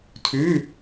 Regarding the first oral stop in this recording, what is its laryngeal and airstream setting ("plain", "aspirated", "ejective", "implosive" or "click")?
aspirated